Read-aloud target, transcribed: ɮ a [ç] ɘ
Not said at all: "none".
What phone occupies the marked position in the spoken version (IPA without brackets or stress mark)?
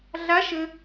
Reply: ʃ